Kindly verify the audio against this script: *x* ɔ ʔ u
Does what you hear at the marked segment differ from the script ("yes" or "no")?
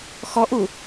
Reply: no